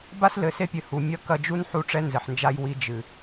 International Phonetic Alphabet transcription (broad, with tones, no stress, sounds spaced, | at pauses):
b a˦ s l ɘ˨ s e˦ pʲ ɘ˨ h u˨ mʲ ɐ˦ k ɐ˦ d͡ʒ u˦ n ħ u˦˨ ʈ͡ʂ ɛ˦ n z ɘ˨ ħ n d͡ʒ a˦ j w i˦ d͡ʒ ɨ˨